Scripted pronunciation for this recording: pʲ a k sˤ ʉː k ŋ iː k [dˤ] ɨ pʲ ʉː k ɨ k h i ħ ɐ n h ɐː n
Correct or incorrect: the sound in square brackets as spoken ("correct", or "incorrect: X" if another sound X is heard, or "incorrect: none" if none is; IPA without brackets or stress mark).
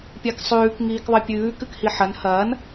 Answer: incorrect: ðˤ